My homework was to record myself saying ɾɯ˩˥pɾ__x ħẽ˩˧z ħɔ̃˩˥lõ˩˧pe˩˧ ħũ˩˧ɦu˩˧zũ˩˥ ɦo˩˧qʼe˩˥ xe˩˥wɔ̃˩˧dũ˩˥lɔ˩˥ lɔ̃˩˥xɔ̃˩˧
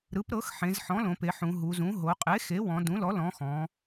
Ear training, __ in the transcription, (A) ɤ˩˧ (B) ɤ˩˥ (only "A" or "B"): B